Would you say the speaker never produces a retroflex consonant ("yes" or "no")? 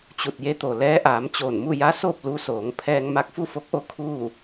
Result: yes